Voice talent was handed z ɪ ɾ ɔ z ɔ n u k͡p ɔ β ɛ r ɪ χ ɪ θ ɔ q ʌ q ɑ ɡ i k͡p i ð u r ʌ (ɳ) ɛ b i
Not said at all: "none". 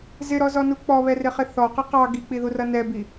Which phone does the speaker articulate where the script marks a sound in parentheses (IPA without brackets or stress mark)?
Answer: n